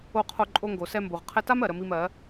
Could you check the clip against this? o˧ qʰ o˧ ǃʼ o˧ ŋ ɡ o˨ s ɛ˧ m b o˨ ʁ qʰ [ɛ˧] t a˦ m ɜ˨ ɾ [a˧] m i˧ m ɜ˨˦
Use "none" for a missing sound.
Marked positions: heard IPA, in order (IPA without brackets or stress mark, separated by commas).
ɛ˧, ə˧